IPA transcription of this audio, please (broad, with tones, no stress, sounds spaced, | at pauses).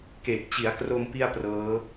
k e˨˩ k̚ t͡ɕ i˩˦ a̯ k r o˧ m p i˥˩ a̯ p r ɤː˦˥